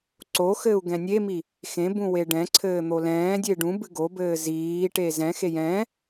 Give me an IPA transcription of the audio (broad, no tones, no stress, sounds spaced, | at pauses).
ǀ o x ɘː u̯ ɡ ɛ̃ nʲ e m i | x ẽ b ũ w e ɖ ɛ̃ ǀʰ ɘː n̪ o l ɛ̃ː dʲ e ɖ ũ b ɨ ɡ o b ɘː z iː ʈ e z ɛ̃ x e j ɛ̃